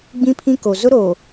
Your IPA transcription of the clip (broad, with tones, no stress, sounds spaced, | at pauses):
ɡ͡b ĩ˦ pʰ ĩ˦ k o˨ z ʊ˦ ɾ o˨